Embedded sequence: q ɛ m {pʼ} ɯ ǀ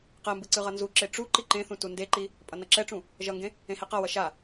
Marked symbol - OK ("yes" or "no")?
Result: no